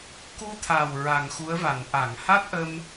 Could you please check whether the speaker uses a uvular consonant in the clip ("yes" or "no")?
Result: no